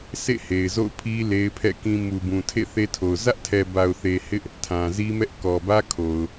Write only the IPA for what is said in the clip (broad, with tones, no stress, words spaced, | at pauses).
sʰḛ˦˨ he˨ɪ̯zo̰˦˨ʊ̯pʰi˦ le˦ɪ̯pʰɛ̰˦˨kĩ˦ mu˨bũ˨tʰḛ˦˨ θe˦tʰo˨ʊ̯ zä˦ʔtʰɛ˨ba˨ʊ̯θe˨ hɪ˦ʔ | tʰã˨zi˦mɛ˦ʔ kɔ˨bä˦kʰo˨ʊ̯